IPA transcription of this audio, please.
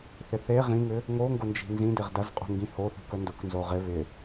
θɪθe ʁĩŋʏ | ŋoŋɡʊnd͡ʒi̤ nzĩdɪʁ dɐzqʼṳŋɡĩ hoθṳkœ ndʊknzo ʁɪ βɪ

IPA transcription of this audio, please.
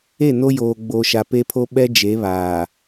e˦˨ no˦joː˨ ɡ͡bo˨ʃa˨ pe˦pʰo˦ɓɛ˦ d͡ʒe˨˦βaː˨

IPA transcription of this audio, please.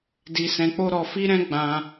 di˧sɛ̃˧k͡po˦ ɾɔ˧fi˦ɾɛ̃˦ ɡ͡bã˧

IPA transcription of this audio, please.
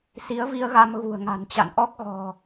si˨˦ə̯vi˧ə̯ɣa˧m ɣṳ˨˩ə̯ŋa̤˨˩nt͡ɕa̰˧˨n ʔɔ˦˥k̚ ɣɔ̤˨˩

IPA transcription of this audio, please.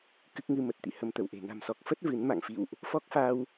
kɨ˦˥k̚ŋɨ˧mə˨˩t̚t̪ḭ˧˨ hə˧mt̪ə˧˩wʔe̤˨˩ na̤˨˩msɔ˨˩k̚ fə˦˥t̚ vɨ˨˦nma̰˧˨ŋfḭ˧˨wʔ | fɔ˦˥k̚fa˧w

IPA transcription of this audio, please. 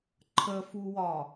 ǃʰəfuwɒ

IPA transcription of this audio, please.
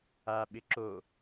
aɓɪ ǁo

